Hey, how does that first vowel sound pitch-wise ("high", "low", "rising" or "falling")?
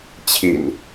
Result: low